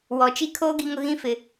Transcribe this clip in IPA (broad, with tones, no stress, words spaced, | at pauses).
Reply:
wɔ˨t͡ʃi˦kʰoː˦ ɡi˦ŋʊ˦ ɣĩ˦ fɪ˦